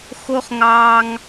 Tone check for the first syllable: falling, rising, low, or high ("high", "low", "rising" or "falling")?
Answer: high